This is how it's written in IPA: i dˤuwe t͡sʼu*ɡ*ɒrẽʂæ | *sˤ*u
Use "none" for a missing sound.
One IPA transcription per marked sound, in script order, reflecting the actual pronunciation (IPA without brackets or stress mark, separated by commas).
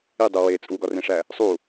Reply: ɡ, sˤ